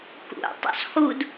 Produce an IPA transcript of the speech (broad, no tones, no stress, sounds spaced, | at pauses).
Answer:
k ṵ tˤ ṵ sˤ x u d